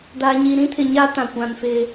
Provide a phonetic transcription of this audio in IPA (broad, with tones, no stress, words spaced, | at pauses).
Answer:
da˨ɲi˨ ɾĩ˦tʰɪ˨ɲa˦ tã˨ kʷã˨nfɪ˦